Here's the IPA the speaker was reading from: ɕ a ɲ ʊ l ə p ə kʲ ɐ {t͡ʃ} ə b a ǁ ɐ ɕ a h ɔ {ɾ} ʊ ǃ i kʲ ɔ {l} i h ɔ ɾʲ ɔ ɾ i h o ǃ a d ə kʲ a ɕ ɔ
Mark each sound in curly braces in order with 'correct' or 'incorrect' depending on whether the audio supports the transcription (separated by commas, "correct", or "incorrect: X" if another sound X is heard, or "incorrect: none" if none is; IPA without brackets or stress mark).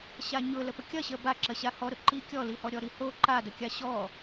incorrect: ɕ, correct, correct